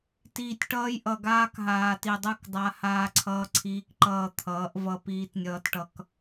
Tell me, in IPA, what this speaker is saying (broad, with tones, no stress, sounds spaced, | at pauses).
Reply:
t iː˨ tʲ ʈ ʌː˦ j ʔ ʌ˨ ɡ aː˦ k ɦ aː˨ t i˨ dˤ ɯ˦˨ k dˤ a˦ h aː˦ ǀʰ ʌː˦ ǀʰ iː˦ k ǃ ʌː˦˨ t̪ʰ ʌː˨˦ ʔ v ʌ˦ p iː˦ t nʲ ʌː˦ t ʈ ʌ˦ k